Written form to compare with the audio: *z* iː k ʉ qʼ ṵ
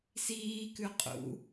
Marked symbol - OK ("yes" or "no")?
no